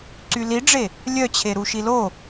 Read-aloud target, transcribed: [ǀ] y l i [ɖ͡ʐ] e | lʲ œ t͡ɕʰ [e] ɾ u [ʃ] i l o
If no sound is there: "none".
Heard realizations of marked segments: ǀ, ɖ͡ʐ, e, ʃ

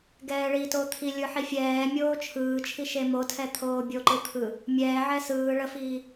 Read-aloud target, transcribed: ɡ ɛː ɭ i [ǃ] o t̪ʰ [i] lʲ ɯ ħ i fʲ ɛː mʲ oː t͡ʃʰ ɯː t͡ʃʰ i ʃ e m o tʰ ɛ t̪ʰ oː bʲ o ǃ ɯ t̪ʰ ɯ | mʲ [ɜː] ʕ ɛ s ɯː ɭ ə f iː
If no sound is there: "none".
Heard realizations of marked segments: t, i, ɛː

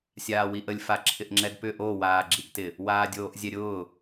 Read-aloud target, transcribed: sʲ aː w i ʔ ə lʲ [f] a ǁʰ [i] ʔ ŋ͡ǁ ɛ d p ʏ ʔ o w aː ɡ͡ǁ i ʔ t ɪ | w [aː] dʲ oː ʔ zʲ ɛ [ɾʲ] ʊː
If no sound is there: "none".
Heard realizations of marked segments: f, ɪ, aː, ɾʲ

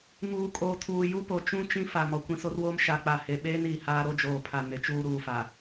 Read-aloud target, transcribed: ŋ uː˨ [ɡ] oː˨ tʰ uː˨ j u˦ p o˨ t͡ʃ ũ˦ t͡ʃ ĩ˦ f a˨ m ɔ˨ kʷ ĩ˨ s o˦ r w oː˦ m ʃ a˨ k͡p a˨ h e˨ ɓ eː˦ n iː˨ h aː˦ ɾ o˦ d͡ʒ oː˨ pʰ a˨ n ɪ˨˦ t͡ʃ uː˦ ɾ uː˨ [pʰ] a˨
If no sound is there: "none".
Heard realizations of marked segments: kʼ, f

